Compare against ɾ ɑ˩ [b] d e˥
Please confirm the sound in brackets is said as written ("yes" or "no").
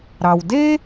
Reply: no